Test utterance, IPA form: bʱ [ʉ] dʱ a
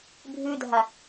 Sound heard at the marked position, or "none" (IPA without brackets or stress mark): ʉ